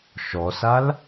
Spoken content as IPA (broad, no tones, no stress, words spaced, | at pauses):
ʃɔsal